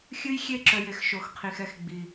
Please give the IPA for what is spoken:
xʲ ɨ˦ j xʲ e˦ ǁ œ˨ j e˨ x ʃ o˨ x qʰ i˨ x ɛ˧ x ɡ͡b i˨

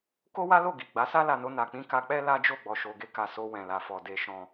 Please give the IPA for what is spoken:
k o˦ w a˦ l o˦˨ ɡ i˨ ɡ͡b a˨˦ s a˦ l a˧ n o˧ n a˨ k͡p ĩ˧ k a˧ k͡p ɛ˦ l a˦ d͡ʒ o˦˨ ɡ͡b ɔ˨ ʃ o˨ ɡ e˧ k a˨ s o˧ w ɛ̃˨ l a˨ f ɔ˨ d e˨ ʃ ɔ̃˨

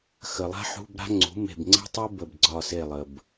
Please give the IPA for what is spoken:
x ə˩ lˠ a̤˥ ħ ṳ˧˥˧ b ɾ a̤˥ ŋ͡ǀ ṳ˩˥ m e̤˧˩ b ŋ͡ǀ ə̤˥ tˤ u˥ b ə˧˩ b ɡ͡ǀ ɒ˧˩ s e˧˩ lˠ ə˩ b

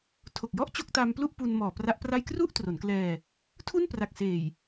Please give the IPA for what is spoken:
tʰ o˨˩ k̚ j ɔ˥˩ ʔ t͡ɕ o˥˩ k̚ t a˧ m p l u˥˩ ʔ p u˧ n m ɔː˨˩ p r a˦˥ ʔ p r a˥˩ j k r u˥˩ ʔ t r o˩˦ n k l ɛː˧ | tʰ u˥˩ n p r a˨˩ k̚ s eː˨˩ j

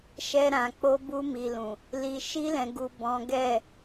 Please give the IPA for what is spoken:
ʃ ɛ˧ ɾ ã˨ k͡p o˧ b u˧ m i˨ l ũ˨ | l i˨ ʃ i˧ l ɛ̃˨ ɡ u˨ b ɔ̃˨˦ ɡ ɛ˦˨

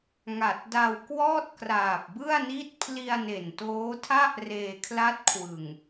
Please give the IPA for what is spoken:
ŋ a˨˩ t̚ d a˧ w k w ɔː˥˩ t̚ k r aː˨˩ p̚ b ɯ˥˩ a̯ n i˦˥ t̚ pʰ l i˧ a̯ n e˨˩ n t oː˦˥ tʰ a˥˩ ʔ r eː˧ kʰ l a˦˥ t̚ kʰ w ɯ˨˩ ŋ

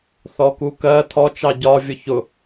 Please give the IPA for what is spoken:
θ ɔ k u k ɜ tʰ ɔ t͡ʃ ɑ ɟ ɒ vʲ ʊ ç ʊ

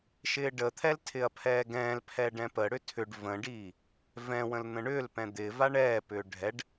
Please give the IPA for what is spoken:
ʃ ɪː ɖ ə t̪ʰ ɛ l tʰ ɪ ɐ̯ pʰ ɛː ɡ ɛ̃ː l pʰ ɛ ɖ ɛ̃ p ə ɽ ʏ tʰ ʏ ɖ v ə̃ ɖ iː | v ɛ̃ w ə̃ l n̪ ə̃ ɳ ʏː l p ɛ̃ d̪ ɪ v a ɳ ɛː p ʏː ɖʱ ɛ ɖ

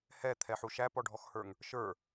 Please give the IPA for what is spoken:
h ɛ t̪ʰ ɛ ħ u ʃ æ p ɔ ɖʱ ɔ x h ə˞ ŋ | ʃ ə˞

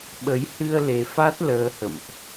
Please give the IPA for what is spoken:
ɓ ə˨˦ j h ɨ˧ ə̯ l e˧ f a˦˥ t̚ l əː˧ h ə̰˧˨ m ʔ

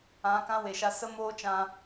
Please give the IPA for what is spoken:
ã˨˦ k ã˦ w e˨ ʃ a˧ s ə˦ m oː˦ t͡ʃ ã˧

